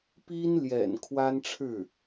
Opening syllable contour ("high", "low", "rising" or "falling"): high